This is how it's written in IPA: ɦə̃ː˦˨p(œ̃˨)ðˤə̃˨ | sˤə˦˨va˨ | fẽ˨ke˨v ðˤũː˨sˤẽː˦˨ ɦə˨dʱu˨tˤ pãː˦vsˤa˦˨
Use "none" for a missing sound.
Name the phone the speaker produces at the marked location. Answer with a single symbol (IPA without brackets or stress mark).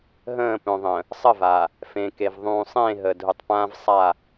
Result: œ̃˨